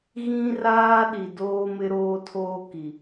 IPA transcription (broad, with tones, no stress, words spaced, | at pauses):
ɣĩ˦raː˦ɗi˨ doː˦ mɪ˦ɾoː˦tʰoː˦ki˨